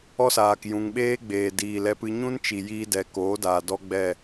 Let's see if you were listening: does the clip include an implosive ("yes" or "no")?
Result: yes